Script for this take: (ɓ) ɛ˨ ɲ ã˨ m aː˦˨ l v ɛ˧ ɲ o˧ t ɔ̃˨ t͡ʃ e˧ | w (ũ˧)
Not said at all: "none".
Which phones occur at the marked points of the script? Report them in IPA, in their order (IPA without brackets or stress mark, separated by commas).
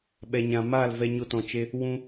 ɓ, ũ˧